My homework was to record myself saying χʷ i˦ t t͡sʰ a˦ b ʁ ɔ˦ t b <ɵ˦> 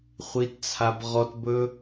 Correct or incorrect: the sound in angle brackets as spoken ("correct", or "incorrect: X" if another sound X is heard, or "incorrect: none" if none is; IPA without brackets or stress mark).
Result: correct